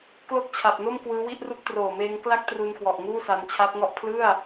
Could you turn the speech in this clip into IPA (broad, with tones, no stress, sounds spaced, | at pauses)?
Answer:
k l o˥˩ k̚ t͡ɕʰ a˨˩ p̚ n o˥˩ m k w ɯː˦˥ w i˥˩ ʔ r u˥˩ k̚ t r oː˨˩ m eː˧ ŋ k l a˥˩ k̚ t r u˧ n k w ɔ˨˩ ʔ ŋ uː˥˩ s a˧ n t͡ɕʰ a˦˥ p̚ ŋ ɔ˥˩ ʔ pʰ l ɯ˥˩ a̯